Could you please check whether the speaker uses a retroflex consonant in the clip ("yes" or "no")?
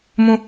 no